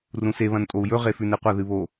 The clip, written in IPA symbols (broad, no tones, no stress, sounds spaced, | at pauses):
r ũ s e β ɐ̃ n tʼ o u̯ j ɵ ʁ e f ʉ n e qʷ ɐ ð ɨ β o